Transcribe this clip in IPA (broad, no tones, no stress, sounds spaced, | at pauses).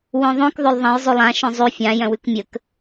w œ̃ ðˤ õ k ðˤ ø lˠ ðˤ ɐ̃ j zˤ ʉ lˠ ã ʃ œ̃ zˤ ʉ fʲ ã j œ̃ w ʉ k mʲ ə k